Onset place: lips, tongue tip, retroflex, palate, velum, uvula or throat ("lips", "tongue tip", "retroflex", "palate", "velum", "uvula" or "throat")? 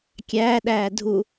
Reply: velum